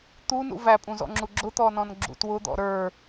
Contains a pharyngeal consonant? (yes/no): no